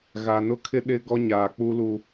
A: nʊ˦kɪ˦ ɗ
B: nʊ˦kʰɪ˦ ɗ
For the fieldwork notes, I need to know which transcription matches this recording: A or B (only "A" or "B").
B